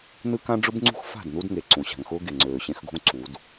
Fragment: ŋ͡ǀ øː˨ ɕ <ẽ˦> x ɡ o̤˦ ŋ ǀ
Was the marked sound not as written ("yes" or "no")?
no